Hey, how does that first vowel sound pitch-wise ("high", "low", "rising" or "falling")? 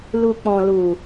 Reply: low